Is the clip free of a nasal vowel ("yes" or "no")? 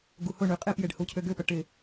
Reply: yes